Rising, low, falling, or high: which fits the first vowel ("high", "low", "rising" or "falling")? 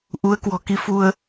rising